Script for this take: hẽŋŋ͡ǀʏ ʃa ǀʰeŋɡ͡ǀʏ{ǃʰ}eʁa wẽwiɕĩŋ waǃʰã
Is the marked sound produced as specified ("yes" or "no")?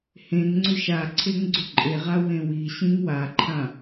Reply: no